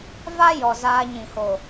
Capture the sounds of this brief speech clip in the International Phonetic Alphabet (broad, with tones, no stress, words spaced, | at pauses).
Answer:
va˦jɔ˨ zaː˧ɲĩ˨ho˨